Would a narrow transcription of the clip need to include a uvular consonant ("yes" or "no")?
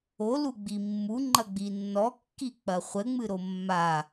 yes